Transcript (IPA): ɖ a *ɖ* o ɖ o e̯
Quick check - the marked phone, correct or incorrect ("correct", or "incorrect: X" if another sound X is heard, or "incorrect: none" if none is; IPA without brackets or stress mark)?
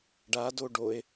incorrect: d